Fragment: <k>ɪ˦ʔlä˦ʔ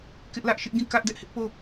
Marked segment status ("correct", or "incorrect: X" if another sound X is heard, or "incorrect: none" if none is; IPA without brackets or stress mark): correct